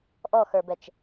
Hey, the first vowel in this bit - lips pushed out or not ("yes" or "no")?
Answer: yes